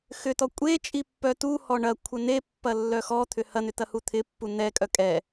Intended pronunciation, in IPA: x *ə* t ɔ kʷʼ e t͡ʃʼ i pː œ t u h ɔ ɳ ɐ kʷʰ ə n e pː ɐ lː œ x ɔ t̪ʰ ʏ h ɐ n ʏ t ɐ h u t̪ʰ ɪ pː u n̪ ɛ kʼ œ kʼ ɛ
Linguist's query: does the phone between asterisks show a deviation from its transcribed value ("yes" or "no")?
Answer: yes